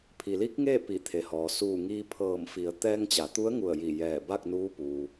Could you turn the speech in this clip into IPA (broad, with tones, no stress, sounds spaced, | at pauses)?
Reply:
pʰ i˩ l i˧˥ k̚ ŋ eː˥˨ p i˧˩ t̪ʰ e˩ h ɔː˩ s uː˧˩ ŋ iː˧ pʰ ɤː˧˩ m f i˩˧ ə̯ t̪ ɛː˧ ŋ t͡ɕ a˩˧ t̪ u˧˥ ə̯ ŋ u˧˩ ə̯ j i˧˩ j ɛː˧˩ b a˥˨ k̚ n uː˧˥ p uː˩